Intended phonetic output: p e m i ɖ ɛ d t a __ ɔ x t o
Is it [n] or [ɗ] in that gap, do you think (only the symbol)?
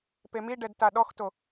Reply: ɗ